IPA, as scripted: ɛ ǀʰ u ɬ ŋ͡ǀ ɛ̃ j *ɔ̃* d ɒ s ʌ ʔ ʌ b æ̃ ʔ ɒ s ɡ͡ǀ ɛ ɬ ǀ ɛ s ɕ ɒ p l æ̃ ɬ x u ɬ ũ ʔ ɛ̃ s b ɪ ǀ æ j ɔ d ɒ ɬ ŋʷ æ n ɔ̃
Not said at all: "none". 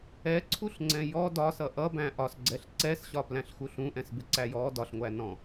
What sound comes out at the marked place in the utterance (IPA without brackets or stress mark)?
ɔ